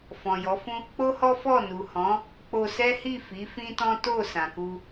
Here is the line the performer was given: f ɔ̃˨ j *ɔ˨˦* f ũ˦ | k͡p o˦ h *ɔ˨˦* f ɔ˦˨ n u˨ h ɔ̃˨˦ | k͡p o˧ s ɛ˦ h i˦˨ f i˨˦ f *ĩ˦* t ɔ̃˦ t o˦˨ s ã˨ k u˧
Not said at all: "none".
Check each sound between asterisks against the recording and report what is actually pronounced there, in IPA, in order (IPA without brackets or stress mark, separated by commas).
ɔ˨˦, ɔ˦, ĩ˦